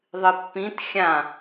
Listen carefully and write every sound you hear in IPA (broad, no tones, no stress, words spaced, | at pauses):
ðˤɨpːĩt xʲã